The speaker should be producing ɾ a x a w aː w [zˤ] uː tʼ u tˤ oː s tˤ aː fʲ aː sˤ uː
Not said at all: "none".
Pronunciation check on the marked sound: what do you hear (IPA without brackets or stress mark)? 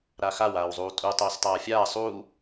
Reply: zˤ